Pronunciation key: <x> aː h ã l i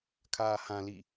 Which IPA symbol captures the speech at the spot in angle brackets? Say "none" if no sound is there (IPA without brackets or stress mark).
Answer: kʰ